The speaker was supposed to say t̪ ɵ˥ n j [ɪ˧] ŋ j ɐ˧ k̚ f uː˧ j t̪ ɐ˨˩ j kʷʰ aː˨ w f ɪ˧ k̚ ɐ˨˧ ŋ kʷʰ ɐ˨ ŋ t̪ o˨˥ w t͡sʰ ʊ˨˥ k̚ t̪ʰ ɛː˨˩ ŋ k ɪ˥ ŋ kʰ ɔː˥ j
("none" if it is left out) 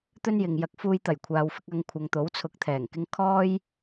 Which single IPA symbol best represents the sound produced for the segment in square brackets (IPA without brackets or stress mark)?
ɪ˨